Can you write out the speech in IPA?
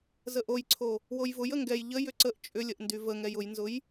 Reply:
zəʔojǀʰo | wojvʊj əŋɡɛj ʎə jʏǀəʔ t͡ʃʼʏlʲəʔndy vəŋɛj ʊjnzʊj

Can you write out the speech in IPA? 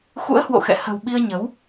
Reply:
xṵ˧˥ə̯hwo̰˧˨xɛ̰˧˨ hə̤˨˩w ɓi˧ə̯ɲə˨˦w

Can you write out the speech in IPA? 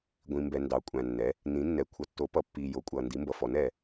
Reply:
ɡʷĩ˩mbɛ˩ ndɑ˩˧kʷʼæ̃˩nːɛ˩˧ | nĩ˩˧nːɛ˩ kʷʰʌ˩tːo˩˧pʌ˩˧pːiː˩ jo˩˧kʷʼʌː˩ndi˩˧ mbʌ˩fɔ˩˧nɛː˩

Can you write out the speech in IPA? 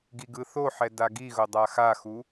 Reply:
ɡiɡɯθoħɛ daɡiɣodˤa xaxu

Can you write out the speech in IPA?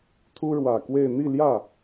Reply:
t̪ʰu˥ɻwä˨˩kwe˥˧ɪ̯ n̪i˥˧ljä˥˩

